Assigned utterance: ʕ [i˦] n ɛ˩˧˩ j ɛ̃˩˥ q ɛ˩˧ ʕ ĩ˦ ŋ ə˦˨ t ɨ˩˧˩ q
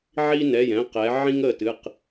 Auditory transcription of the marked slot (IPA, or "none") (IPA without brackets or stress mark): i˦